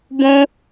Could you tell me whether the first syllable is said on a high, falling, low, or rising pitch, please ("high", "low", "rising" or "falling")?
high